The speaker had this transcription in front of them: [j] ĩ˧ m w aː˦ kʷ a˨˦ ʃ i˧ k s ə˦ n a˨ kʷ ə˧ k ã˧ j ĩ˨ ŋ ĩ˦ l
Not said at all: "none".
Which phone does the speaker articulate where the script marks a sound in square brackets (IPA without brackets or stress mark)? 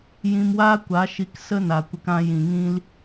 j